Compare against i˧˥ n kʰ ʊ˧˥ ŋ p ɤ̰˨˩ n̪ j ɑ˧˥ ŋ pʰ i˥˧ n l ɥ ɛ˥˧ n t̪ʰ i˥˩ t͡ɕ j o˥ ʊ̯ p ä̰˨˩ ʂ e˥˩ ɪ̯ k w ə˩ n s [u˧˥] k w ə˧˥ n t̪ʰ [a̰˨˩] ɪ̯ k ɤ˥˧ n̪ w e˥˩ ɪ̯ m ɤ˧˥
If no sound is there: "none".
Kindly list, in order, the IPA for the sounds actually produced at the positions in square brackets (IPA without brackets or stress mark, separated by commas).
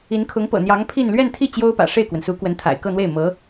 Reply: u˧˥, a̰˨˩